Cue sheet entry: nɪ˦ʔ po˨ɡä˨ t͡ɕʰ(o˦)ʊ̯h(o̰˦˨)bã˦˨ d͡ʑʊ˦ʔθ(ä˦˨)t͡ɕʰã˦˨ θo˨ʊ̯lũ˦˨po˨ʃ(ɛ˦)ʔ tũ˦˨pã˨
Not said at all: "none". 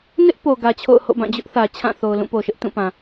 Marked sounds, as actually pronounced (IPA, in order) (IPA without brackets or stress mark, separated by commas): o̰˦˨, o̰˦˨, ä˨, ɪ˦